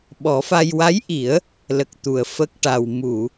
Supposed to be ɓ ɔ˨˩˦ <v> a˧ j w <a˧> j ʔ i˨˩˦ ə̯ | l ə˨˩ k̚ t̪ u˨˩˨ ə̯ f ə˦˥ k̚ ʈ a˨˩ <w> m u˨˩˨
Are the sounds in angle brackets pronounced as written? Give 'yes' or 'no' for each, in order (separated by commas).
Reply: no, no, yes